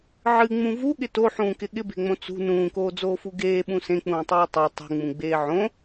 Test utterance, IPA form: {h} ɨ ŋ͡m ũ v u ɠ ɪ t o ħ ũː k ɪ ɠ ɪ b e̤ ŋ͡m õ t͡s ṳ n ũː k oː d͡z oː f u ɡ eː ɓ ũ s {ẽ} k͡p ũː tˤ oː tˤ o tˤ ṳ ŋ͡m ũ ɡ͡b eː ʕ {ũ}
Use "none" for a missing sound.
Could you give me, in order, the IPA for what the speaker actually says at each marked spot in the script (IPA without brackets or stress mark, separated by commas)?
ʕ, ẽ, õ